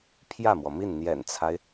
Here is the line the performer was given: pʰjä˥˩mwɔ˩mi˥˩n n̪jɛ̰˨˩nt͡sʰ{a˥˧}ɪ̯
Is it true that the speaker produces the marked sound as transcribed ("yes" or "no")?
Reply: no